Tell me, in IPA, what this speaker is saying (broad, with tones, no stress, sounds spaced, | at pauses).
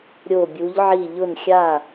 ɾʲ o˧˩ bʲ u˨˦ ʎ ʕ i˧˩ ʎ ʊ˧˩ n xʲ a˧˩